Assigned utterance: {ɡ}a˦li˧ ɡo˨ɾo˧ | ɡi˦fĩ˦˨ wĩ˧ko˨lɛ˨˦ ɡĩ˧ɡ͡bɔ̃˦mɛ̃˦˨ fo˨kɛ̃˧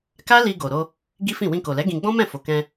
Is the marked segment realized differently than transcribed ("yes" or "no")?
yes